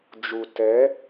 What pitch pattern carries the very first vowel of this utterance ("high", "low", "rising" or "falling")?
low